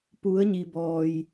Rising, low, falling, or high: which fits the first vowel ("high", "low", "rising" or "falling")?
rising